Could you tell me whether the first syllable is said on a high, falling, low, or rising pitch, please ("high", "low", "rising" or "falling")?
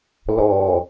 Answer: low